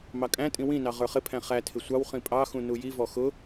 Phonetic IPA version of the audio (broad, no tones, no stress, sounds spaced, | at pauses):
m ɑ kʼ æ̃ tʼ ĩ w ĩ n ɑ ʁ ə˞ χ ɪ pʰ æ̃ χ æ tʰ ɪ sʷ ɑ w χ ĩ pʼ ɑ x ũ n u j i v ɔ x ʊ